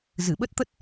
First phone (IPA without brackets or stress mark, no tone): z